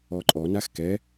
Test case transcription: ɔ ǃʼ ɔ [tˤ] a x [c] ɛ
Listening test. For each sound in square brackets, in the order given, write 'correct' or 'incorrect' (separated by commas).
incorrect, incorrect